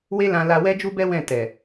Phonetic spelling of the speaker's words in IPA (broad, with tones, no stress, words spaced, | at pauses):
we˦lã˧ la˧wɛ˦d͡ʒu˦bɛ˦ wɛ̃˦˨tɛ˨